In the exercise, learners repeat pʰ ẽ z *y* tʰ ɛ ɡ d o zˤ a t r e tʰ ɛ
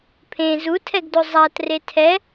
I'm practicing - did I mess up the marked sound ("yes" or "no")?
yes